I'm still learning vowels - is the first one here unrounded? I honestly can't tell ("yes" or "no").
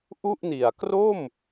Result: no